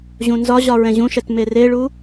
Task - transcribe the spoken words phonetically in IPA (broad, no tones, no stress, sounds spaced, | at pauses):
ʑ ũ n z ɒ ʑ ɒ ɹ ɛ̃ ʑ ũ ʃ ɛ t m e r e ɭ u